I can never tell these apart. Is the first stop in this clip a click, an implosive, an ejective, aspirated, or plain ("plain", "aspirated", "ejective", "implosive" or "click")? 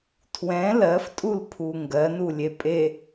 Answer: aspirated